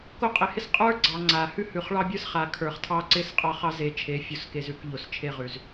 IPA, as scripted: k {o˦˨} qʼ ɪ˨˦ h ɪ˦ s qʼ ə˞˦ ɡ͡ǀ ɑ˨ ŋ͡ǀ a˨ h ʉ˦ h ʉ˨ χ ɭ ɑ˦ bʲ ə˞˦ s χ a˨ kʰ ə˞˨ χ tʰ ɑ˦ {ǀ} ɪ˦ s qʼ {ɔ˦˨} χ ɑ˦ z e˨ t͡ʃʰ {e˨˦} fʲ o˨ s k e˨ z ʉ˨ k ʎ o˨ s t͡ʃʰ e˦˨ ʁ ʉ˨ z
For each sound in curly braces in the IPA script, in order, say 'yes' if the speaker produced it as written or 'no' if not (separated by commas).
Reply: no, yes, no, yes